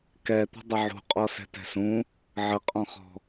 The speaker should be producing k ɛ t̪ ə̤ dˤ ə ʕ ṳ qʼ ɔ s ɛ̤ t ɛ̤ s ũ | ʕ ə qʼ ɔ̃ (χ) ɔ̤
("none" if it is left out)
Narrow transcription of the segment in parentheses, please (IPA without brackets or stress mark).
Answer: χ